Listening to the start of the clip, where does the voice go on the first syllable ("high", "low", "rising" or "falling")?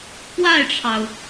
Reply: falling